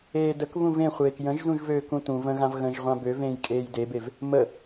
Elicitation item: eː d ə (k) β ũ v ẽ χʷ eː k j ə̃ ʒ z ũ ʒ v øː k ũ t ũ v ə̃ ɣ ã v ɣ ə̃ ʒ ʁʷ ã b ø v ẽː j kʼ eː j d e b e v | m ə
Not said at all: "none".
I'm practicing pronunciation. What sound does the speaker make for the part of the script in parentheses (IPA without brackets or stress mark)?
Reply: k